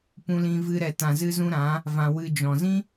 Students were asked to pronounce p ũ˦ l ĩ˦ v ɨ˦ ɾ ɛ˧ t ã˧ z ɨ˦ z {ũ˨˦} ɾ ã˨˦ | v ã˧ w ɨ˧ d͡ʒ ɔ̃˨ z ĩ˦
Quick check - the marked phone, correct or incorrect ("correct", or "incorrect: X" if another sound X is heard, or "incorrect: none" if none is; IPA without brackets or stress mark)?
incorrect: ũ˦